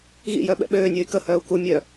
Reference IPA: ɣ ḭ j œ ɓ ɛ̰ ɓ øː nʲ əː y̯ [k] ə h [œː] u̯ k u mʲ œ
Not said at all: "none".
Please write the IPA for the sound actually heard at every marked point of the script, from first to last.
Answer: k, œː

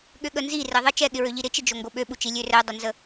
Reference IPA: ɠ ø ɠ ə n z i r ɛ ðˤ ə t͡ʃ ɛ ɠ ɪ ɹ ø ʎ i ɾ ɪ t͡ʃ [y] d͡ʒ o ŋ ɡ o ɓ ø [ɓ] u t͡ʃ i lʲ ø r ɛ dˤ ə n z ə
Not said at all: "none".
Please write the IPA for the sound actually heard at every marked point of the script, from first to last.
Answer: ɪ, ɓ

